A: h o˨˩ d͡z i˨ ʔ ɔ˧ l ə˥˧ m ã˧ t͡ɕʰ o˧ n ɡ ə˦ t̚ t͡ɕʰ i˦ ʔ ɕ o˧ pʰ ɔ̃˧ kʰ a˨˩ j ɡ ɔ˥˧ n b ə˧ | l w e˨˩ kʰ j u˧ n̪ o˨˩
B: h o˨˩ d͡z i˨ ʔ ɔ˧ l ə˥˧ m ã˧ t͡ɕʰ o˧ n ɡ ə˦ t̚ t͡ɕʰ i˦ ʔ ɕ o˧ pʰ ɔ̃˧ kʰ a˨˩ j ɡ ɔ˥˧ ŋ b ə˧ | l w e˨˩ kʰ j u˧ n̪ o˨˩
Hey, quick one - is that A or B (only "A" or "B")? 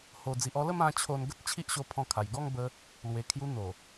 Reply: B